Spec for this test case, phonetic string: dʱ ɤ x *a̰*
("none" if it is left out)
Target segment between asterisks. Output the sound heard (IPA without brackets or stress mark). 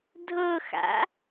a̰